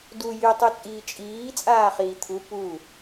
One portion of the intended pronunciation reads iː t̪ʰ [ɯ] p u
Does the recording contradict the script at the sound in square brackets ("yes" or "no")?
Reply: yes